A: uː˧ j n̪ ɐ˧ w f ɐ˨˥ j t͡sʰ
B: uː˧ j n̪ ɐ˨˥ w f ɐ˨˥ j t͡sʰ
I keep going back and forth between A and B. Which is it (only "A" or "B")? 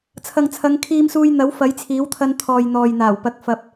B